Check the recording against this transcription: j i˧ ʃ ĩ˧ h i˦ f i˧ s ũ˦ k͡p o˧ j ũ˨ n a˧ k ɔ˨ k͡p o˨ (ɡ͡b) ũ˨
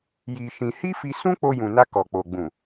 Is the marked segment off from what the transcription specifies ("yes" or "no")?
no